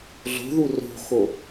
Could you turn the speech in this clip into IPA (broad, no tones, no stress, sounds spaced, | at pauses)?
ɮ o̤ ð u r o̤ x o